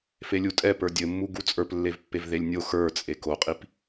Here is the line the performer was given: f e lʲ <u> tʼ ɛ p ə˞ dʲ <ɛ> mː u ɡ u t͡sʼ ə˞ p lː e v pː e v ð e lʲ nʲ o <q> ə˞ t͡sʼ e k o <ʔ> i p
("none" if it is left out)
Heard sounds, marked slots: u, ɘ, x, qʼ

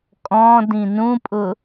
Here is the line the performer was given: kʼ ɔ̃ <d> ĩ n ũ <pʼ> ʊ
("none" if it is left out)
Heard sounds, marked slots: d, pʼ

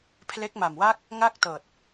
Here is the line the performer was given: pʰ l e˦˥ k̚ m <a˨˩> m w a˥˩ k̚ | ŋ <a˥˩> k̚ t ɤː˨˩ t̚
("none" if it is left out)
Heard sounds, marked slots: a˨˩, a˥˩

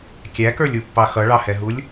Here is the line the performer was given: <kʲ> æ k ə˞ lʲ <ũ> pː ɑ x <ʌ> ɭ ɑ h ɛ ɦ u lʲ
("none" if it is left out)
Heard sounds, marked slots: kʲ, u, ʌ

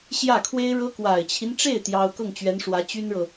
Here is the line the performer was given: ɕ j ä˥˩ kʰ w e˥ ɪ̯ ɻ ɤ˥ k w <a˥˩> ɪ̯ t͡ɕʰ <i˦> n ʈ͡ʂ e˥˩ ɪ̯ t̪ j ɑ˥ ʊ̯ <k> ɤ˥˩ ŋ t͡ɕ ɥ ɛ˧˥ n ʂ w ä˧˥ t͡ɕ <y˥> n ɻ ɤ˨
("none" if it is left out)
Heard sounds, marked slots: a˨˩, i˦, k, y˥

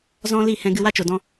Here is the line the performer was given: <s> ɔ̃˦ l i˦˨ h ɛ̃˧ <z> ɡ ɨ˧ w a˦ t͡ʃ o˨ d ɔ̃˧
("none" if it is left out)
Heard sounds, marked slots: z, none

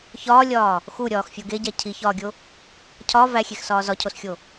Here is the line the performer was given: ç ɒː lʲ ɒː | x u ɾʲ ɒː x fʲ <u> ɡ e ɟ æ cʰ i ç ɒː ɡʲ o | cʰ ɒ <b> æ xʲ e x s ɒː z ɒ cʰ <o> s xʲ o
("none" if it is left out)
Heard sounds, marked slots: o, v, o

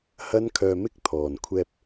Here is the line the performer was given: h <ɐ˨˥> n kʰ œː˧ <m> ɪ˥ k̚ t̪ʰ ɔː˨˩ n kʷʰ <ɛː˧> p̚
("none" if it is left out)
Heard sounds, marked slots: ɐ˥, m, ɛː˧

